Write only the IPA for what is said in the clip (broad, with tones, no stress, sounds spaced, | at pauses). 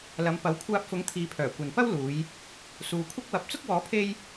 l ɐ˨˧ m p ɐ˨˥ w kʷʰ aː˧ p̚ f ʊ˨˥ ŋ t̪ʰ iː˨˧ pʰ œː˨˩ kʷ ɐ˨ n p ɐ˥ w l uː˨˧ j | s uː˨ kʷʰ ɐ˥ k̚ w ɐ˨˥ p̚ t͡s ʊ˥ k̚ w ɔː˨˥ pʰ e˥ j